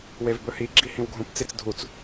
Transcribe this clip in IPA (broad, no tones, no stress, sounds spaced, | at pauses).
w e v b ɵ h i ɡ͡ǁ i h ĩ w ɡʱ ũ p t͡s i t͡s dʱ u t͡s